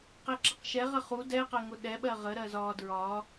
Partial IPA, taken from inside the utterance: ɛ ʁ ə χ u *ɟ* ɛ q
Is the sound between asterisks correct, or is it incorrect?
incorrect